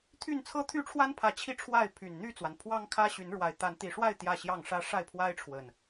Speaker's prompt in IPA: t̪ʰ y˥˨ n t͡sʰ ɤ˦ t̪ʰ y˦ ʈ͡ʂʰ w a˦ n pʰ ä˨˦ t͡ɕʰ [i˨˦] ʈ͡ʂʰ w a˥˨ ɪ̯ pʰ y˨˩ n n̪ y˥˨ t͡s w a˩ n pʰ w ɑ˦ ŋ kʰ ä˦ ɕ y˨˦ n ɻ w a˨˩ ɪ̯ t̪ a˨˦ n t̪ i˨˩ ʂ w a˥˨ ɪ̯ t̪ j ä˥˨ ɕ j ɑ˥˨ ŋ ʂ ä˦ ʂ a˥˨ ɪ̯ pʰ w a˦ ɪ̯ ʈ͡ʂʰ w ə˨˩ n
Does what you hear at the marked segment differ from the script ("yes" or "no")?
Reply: yes